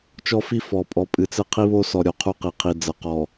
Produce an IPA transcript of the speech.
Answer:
t͡ʃɔ˦fi˦ fɔ˨ pʼɔ˨pʼɨ˨t͡sɘ˦ qʰi˦βo˦sɔ˨ ɾʲo˨qʰu˦qi˨qʰi˨ d͡zɐ˨ qɔ˨

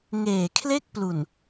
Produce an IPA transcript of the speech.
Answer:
ŋeː˨˩kʰle˥˩k̚plu˨˩n

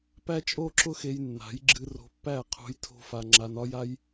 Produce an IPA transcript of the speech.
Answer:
pæ˦t͡ʃʼo˦ǁʊ˦xe˧j nːa̤˨˦jɡ͡ǁɨ˧ ro̤˧pːæ˦˨qʰṳ˧j tʰo̤˦fa˧ ŋ͡ǁa˧nɒ˦ja˦j

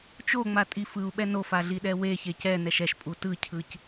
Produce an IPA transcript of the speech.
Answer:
t͡ʃoŋ͡matʼi fɯu̯ɓɛ nofaɮiɗɛ weçe cɛnɛʃ ɛʃpʼu tɯcʰɯc

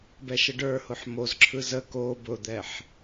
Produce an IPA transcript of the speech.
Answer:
bɛʃəɖə˞hʊħ mozǁʰɯ zə ko bʊd̪ɛħ

